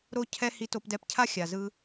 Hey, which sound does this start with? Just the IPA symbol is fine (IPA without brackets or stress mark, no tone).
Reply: ɾ